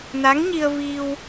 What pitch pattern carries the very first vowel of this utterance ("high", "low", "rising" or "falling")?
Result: rising